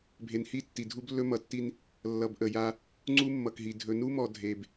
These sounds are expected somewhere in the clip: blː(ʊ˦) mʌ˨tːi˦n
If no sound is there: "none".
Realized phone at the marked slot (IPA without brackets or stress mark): ɵ˦